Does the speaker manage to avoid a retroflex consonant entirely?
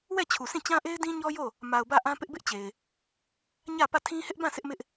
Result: yes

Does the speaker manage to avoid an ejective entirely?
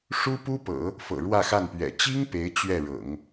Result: yes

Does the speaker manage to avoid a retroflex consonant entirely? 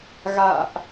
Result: yes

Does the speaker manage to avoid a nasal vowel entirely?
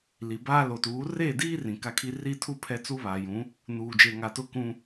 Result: no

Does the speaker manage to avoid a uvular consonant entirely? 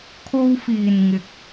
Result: yes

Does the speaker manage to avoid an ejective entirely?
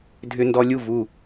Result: yes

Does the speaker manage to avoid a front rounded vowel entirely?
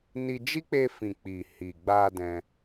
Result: yes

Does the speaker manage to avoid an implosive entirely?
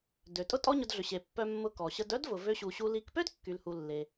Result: yes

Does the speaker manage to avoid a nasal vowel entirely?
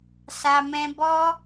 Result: no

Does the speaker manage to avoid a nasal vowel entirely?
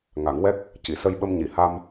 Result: yes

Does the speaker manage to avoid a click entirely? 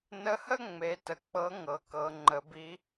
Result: no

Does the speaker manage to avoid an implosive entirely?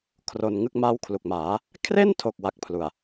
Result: yes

